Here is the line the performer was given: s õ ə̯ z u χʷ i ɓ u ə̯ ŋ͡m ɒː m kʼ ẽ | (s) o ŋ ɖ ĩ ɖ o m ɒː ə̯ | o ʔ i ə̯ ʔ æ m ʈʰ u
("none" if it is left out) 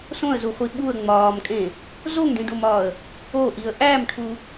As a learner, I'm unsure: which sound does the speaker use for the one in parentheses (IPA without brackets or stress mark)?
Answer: z